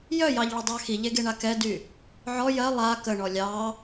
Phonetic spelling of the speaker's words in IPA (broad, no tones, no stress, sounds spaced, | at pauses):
j œ j ɑ ʎ ɭ ə dˤ ɑ x i ʎ e ɡ e ɳ a k ɛ d y | ʕ ɔ j ɜ lˠ a k ə ɳ ɔ lʲ ɑ